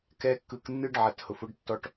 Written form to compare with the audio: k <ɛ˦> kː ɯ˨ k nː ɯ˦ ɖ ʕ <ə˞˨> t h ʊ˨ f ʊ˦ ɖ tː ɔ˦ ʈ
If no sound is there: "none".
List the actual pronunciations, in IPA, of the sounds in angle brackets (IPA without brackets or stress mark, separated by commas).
ɛ˦, ɐ˨